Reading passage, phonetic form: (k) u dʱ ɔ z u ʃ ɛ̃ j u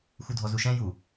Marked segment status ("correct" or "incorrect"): incorrect